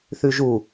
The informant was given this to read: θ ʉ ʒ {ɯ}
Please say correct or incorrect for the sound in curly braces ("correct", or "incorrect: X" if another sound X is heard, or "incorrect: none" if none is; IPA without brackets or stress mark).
incorrect: u